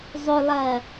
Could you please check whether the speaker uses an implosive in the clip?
no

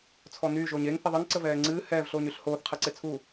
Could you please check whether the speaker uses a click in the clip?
yes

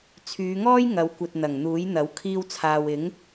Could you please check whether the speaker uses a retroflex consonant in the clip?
no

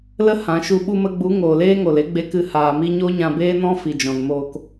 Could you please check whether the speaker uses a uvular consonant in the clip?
no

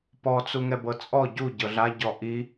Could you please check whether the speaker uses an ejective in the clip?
yes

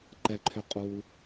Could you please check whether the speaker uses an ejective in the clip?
yes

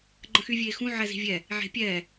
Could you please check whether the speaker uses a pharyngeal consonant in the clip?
yes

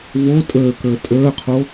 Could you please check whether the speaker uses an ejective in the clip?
yes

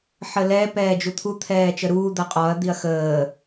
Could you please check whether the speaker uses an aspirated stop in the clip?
yes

